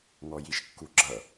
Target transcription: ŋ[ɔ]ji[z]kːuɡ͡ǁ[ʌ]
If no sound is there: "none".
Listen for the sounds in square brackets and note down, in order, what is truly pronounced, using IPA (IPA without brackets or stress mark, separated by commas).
ɔ, ʃ, ʌ